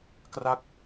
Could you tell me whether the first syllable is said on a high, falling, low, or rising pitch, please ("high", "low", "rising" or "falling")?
falling